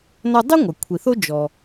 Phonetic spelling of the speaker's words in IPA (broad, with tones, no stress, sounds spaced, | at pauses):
n ɔ˧ dˤ i˥ ŋʷ a˩ kʷʰ i˩ θ o˥ d͡ʒ ɔ˩